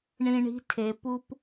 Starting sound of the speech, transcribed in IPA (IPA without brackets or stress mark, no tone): ɳ